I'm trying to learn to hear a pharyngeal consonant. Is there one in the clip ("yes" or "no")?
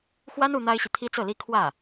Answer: no